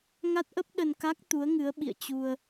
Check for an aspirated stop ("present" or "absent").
absent